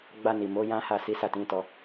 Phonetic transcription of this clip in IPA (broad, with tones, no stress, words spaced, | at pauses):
ɡ͡ba˧ni˨ mo˨˦ jã˦ha˦˨ si˨˦sa˦˨tĩ˨˦tɔ˧